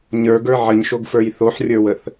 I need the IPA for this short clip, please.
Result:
ɲ ə˞ ɡ ə˞ ʕ ə ɲ ʃ o ɡ f ə˞ j θ o ħ rʲ ə˞ w ə θ

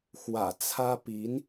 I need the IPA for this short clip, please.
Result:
x w ä̰˨˩ t͡sʰ ä˥ p i˧˥ n

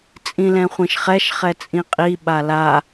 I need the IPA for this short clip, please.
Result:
t͡sʼ ĩ l ɛ̃ χʷ ĩ ʃ χ ɛ ʃ χ ɛ t͡sʼ ĩ qʼ i ɓ a l a

